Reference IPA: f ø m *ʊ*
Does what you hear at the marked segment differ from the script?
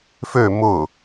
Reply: no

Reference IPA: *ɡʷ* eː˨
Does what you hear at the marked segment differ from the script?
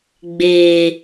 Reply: yes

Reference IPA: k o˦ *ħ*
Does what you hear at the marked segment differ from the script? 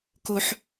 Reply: no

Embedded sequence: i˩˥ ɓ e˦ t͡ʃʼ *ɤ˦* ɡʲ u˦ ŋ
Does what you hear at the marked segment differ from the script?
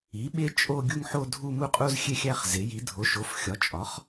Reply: yes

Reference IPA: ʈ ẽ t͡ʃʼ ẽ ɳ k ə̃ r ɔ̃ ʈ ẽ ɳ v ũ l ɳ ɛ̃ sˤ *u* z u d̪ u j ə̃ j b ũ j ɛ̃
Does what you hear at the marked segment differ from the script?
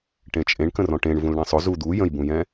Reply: yes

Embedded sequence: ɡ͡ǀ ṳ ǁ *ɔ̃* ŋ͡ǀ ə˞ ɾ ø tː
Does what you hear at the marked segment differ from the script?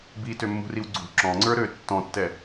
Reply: no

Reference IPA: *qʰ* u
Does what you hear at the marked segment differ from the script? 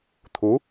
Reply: yes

